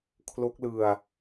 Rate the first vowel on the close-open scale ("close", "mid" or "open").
mid